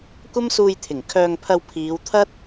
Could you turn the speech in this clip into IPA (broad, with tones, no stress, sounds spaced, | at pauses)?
kʷ ɐ˥ m s uː˧ j t̪ʰ ɪ˨˩ ŋ kʰ œː˧ ŋ pʰ ɐ˧ w pʰ iː˨˧ w t̪ʰ ɐ˥ t̚